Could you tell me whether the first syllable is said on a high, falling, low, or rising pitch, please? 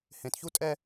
low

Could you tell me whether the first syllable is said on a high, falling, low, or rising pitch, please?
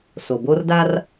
low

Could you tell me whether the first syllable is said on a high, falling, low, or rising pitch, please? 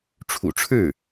low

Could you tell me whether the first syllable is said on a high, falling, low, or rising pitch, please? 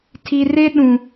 low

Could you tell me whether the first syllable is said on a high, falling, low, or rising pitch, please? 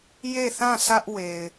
falling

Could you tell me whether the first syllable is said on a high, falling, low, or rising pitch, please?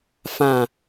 low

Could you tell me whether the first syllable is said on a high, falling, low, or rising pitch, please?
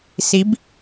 rising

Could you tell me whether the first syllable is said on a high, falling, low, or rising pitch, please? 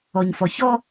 low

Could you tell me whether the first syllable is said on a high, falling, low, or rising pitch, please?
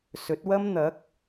rising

